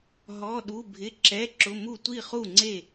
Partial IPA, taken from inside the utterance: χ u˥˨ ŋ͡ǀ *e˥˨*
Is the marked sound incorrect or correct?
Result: correct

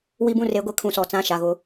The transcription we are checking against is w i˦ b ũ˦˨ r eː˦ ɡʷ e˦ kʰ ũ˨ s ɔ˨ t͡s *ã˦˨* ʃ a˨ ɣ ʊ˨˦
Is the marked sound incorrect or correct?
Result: correct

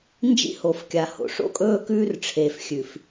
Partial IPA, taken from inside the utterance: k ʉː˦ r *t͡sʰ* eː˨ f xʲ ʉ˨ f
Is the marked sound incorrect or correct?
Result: incorrect: ʈ͡ʂʰ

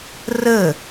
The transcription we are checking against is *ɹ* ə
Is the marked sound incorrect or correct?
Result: incorrect: r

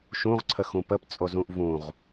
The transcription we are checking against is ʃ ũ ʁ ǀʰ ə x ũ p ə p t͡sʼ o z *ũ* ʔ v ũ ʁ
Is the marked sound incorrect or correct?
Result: correct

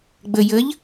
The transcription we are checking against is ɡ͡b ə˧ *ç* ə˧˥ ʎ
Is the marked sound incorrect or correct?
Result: incorrect: j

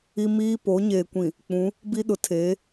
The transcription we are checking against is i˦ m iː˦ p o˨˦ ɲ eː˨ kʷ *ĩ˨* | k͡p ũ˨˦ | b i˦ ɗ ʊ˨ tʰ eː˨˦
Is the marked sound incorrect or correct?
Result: correct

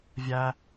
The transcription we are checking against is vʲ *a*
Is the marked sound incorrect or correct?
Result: incorrect: æ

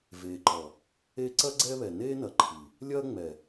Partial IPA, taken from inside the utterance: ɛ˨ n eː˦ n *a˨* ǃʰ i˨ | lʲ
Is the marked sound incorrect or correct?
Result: incorrect: ɐ˨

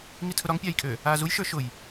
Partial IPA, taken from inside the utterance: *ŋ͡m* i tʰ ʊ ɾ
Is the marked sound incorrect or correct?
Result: incorrect: ŋ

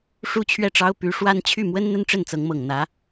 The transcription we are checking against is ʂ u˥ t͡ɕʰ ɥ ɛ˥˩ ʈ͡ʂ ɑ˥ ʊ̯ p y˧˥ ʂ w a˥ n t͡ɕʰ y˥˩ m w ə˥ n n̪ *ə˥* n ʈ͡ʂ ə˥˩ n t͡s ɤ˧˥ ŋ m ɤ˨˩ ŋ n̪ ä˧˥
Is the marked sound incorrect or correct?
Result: correct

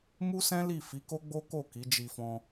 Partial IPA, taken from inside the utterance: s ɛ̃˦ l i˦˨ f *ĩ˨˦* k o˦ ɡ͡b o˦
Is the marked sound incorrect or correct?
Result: incorrect: i˨˦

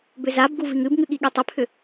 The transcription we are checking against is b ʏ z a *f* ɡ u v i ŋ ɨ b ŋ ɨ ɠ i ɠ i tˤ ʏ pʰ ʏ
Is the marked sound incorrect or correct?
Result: incorrect: b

